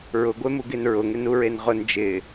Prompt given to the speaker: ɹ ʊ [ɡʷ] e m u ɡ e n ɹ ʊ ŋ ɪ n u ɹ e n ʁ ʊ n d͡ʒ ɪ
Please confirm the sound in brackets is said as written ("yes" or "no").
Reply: yes